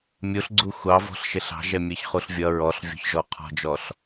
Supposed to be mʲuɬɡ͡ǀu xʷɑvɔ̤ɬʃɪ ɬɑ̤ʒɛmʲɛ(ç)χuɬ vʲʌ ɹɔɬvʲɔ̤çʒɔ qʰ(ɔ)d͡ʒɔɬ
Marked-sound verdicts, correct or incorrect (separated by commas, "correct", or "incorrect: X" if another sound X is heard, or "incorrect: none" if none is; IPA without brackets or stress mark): correct, incorrect: ɔ̤